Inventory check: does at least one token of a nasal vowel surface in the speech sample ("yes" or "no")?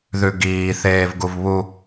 no